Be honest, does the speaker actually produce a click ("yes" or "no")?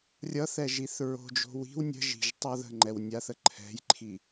yes